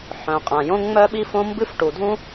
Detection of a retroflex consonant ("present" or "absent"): present